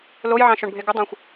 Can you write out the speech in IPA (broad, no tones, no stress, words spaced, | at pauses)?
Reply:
lojʕɑ̃ ʃoɳbʱeɡədˤɑ̃xʷ